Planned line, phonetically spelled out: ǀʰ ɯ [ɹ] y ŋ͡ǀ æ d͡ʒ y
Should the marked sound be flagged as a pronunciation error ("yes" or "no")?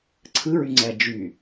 no